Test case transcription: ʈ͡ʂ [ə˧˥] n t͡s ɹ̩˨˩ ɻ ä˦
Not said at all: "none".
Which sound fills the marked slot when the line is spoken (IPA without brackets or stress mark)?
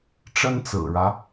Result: ə˥